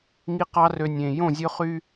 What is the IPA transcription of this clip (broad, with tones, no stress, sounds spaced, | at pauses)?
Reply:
ŋ i˦ q ɑ˦ r ø˨ nʲ ẽː˨ j õ˦˨ zʲ ɵ˦ χ y˦